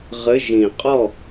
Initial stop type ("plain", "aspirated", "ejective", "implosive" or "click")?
ejective